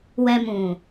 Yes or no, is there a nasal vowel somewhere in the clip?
yes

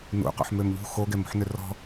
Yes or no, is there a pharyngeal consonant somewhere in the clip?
yes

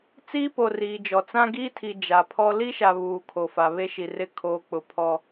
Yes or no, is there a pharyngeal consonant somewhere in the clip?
no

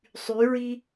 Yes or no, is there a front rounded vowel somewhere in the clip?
yes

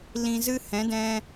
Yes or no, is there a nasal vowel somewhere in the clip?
yes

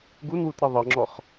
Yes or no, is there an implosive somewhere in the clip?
no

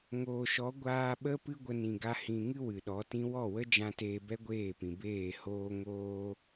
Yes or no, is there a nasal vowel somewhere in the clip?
yes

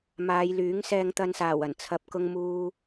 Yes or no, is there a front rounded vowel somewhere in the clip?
yes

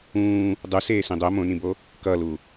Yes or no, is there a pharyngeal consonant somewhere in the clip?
no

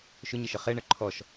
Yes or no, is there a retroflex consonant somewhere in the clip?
yes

